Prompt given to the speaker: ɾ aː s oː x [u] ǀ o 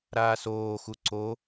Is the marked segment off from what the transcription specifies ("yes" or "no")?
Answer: no